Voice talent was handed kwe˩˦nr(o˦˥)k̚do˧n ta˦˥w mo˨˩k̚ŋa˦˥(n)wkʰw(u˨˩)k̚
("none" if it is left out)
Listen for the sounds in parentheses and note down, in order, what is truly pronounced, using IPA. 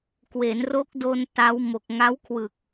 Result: o˦˥, none, ɯ˨˩

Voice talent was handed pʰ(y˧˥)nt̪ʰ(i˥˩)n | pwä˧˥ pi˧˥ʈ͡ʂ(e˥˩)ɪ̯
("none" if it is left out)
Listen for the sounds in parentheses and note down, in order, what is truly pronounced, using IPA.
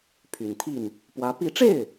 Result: y˨˩, i˥˩, e˥˩

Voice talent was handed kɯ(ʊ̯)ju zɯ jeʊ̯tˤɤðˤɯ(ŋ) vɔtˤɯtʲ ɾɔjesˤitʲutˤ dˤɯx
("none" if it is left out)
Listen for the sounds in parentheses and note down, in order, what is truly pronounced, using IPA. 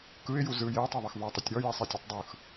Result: ɪ̯, x

